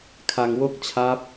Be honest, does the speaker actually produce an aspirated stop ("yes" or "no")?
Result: yes